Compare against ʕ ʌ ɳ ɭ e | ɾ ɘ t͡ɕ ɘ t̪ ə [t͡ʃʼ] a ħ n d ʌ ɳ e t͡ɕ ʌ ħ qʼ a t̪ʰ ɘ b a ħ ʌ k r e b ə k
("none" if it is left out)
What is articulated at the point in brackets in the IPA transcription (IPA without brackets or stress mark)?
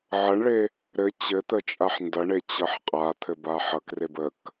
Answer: t͡ʃʼ